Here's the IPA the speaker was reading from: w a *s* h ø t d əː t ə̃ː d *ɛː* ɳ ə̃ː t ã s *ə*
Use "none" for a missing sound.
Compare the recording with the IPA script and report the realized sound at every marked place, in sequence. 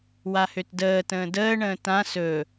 none, əː, ɵ

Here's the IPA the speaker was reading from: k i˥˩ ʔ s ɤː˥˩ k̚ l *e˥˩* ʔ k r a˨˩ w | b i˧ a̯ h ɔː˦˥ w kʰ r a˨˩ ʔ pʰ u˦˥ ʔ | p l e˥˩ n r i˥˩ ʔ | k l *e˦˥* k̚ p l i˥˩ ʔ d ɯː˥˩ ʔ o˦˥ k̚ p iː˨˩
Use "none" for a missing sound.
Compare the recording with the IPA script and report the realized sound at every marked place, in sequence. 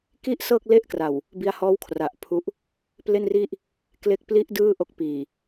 e˥˩, e˦˥

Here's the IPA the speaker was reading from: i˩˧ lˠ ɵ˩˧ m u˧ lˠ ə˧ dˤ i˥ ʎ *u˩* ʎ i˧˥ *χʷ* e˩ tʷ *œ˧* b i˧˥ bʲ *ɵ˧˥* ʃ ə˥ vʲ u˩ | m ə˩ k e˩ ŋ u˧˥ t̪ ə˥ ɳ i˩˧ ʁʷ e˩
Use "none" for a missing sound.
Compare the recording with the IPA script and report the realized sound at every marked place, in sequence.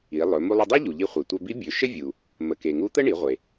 u˩, χʷ, œ˧, ɵ˩˧

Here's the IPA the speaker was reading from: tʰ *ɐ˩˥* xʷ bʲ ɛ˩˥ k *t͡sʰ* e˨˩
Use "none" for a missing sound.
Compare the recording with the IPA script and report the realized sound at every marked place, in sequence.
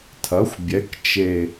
ɐ˩˥, t͡ʃ

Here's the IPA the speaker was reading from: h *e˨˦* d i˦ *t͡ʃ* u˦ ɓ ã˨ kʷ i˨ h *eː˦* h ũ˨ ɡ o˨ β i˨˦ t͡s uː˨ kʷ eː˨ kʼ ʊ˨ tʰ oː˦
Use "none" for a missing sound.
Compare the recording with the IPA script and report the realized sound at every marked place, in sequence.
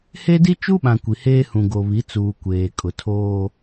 e˦, t͡ʃ, eː˦

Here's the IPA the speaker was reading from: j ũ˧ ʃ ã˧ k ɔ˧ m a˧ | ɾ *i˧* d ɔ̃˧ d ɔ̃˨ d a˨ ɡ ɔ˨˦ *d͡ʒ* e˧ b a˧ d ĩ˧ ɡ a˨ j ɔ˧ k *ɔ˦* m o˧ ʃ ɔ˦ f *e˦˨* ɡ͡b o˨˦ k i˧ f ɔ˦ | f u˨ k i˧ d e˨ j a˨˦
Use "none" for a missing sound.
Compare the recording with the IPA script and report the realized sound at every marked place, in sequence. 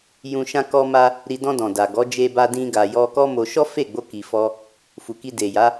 i˧, d͡ʒ, ɔ˦, e˦˨

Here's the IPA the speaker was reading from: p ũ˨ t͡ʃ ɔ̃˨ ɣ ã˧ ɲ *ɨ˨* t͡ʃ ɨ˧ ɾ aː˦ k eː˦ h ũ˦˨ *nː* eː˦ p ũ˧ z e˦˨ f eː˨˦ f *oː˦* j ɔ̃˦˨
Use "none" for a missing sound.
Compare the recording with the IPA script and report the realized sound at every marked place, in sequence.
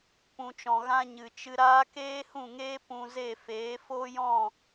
ɨ˨, ŋ, oː˦

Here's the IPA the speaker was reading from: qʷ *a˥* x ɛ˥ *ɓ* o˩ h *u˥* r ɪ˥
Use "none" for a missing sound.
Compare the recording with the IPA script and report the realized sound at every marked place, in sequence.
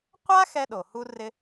a˥, ɗ, u˥

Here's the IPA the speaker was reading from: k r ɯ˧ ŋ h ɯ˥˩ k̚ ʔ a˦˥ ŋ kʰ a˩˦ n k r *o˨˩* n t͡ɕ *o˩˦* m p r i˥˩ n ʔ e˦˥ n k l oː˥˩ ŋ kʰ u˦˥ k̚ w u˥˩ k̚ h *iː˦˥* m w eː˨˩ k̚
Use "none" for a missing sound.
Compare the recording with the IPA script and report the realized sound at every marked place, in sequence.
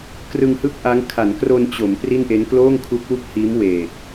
o˧, o˩˦, iː˦˥

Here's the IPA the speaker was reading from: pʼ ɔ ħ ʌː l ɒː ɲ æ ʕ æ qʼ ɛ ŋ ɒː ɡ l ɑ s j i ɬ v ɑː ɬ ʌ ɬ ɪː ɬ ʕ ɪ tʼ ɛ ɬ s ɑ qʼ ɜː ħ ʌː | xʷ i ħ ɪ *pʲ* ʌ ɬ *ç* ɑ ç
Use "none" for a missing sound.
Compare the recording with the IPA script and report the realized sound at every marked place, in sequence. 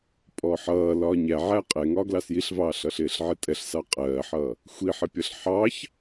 pʲ, ħ

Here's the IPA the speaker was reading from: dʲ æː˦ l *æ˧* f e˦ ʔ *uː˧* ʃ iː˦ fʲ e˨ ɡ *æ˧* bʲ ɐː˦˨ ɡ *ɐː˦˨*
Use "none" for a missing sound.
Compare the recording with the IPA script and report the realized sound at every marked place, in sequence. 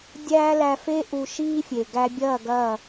æ˧, u˧, æ˧, ɐː˦˨

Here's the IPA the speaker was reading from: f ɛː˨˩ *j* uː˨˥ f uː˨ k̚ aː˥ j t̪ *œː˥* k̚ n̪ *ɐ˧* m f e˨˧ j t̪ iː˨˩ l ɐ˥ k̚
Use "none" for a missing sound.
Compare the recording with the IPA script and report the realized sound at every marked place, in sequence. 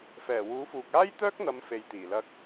w, œː˥, ɐ˨˧

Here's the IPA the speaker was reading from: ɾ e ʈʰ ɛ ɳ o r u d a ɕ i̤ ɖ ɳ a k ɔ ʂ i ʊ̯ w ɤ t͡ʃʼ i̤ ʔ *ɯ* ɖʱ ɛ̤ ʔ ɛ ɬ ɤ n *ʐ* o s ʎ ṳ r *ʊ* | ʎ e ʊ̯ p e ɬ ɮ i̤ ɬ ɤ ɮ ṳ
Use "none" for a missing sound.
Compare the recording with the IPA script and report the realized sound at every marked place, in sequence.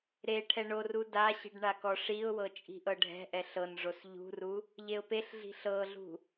ɤ, ʐ, u

